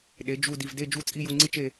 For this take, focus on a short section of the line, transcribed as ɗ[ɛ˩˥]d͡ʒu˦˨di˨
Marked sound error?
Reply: yes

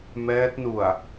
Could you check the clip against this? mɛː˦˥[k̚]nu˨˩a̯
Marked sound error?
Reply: yes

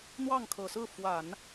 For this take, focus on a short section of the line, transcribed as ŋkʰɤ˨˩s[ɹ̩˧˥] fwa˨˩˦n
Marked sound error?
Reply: yes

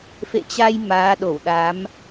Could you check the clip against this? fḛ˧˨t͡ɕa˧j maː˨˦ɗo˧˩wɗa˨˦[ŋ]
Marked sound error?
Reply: yes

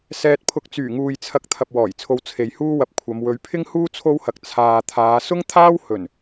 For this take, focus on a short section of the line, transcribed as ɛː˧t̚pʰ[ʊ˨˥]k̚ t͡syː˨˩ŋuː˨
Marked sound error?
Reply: yes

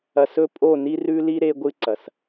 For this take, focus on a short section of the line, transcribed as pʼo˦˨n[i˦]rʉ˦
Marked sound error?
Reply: no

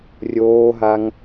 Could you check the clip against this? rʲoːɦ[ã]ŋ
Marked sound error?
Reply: yes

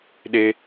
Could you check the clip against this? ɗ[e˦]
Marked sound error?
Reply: no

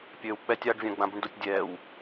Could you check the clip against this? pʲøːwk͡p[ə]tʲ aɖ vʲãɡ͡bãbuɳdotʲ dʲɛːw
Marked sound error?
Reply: yes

